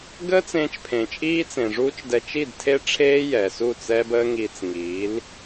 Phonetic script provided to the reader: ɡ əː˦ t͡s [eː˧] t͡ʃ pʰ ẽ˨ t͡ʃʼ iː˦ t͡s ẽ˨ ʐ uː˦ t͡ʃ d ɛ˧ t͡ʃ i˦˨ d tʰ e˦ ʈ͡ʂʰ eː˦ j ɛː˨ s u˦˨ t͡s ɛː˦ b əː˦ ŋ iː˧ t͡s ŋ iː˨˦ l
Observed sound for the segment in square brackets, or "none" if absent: ẽː˧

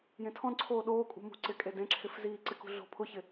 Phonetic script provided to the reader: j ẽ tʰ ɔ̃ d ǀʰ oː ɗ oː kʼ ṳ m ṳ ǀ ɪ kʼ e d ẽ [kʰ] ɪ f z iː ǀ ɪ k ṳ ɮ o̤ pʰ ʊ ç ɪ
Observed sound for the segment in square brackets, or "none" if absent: ǁʰ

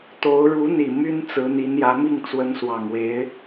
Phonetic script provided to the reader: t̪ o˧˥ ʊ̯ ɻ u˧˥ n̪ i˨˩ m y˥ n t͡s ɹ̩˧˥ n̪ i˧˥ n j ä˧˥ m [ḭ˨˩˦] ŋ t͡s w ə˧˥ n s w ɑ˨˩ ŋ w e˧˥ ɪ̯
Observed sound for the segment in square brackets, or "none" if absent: i˥˩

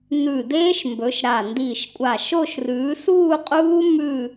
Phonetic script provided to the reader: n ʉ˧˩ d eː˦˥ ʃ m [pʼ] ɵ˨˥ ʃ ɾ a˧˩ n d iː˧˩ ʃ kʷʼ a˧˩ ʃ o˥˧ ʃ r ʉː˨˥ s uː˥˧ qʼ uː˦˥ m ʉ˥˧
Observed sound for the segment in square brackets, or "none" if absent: b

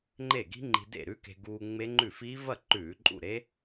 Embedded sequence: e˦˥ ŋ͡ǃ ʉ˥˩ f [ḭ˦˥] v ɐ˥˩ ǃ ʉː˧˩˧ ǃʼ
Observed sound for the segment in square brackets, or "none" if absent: i˦˥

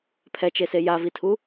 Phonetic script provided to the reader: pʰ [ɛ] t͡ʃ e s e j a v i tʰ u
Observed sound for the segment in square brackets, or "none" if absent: ɛ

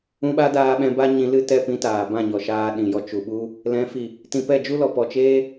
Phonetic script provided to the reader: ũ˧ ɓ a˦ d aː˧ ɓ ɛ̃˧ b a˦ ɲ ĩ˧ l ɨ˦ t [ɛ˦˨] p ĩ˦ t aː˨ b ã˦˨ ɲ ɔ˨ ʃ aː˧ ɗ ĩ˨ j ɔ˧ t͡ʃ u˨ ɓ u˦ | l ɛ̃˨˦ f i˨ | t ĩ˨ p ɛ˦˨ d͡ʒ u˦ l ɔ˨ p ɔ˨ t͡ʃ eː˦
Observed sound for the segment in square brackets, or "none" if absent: ɛ˦˨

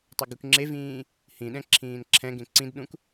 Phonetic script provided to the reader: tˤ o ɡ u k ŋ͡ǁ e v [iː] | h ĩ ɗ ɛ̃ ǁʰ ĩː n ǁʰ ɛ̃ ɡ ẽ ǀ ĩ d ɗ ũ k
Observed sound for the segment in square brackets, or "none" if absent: ĩː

